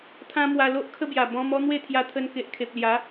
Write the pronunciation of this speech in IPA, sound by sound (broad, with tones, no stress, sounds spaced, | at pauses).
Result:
t̪ʰ ã˦ m w a˧ l o˦ ʔ kʰ ə˦ b j a˨˩ b ɔ̃˧ m ɔ˦ n̪ w e˥˧ t̪ʰ j a˧ t̪ʰ ə˧ n k e˨ ʔ kʰ e˨ p̚ l j a˨˦